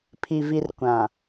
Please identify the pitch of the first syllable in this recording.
low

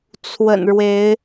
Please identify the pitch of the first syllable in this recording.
low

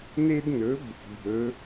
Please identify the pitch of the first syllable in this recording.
high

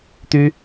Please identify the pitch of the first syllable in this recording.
high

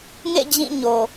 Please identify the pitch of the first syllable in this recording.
falling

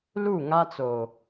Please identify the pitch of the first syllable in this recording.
falling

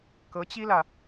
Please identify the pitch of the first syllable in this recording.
rising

